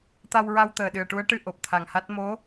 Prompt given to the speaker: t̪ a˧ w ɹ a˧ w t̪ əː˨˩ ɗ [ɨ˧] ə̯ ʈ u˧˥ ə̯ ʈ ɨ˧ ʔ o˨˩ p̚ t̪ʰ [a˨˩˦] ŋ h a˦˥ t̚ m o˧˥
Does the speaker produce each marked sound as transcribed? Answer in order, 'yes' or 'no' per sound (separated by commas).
no, no